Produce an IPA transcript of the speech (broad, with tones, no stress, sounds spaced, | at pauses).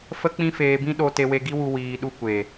f ə˦ k͡p ĩ˦ f eː˧ b ĩ˦ ɗ o˧ t e˧ w e˧ ɡ i˦ w u˧ w iː˨ ɗ u˧ kʷ e˨